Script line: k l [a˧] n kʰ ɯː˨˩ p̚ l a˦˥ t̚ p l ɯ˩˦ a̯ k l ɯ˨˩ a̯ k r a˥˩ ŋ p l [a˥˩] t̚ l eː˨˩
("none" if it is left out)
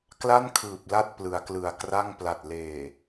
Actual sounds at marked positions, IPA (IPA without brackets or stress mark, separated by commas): a˥˩, a˨˩